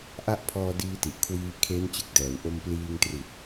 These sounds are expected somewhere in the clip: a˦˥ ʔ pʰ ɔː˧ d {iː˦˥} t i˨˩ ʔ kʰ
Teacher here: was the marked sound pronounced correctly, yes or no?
no